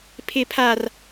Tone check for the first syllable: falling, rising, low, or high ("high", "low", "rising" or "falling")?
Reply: high